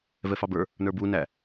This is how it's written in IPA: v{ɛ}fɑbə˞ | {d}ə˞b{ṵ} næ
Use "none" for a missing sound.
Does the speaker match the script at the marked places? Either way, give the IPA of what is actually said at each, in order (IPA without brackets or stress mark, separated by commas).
ɛ, n, u